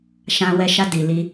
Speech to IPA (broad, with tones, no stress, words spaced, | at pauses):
ʃã˧ wɛ˧ʃa˧ di˨ li˧